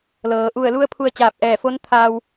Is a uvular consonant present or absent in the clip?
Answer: absent